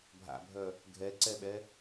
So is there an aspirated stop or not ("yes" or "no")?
no